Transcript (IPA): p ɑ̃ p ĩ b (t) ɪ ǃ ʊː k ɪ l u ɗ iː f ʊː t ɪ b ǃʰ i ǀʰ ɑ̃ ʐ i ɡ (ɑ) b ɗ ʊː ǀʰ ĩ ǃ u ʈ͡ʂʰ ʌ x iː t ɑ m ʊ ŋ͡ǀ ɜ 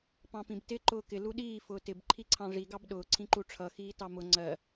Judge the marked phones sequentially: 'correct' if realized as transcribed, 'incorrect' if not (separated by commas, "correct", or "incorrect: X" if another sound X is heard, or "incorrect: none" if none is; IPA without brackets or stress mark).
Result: correct, correct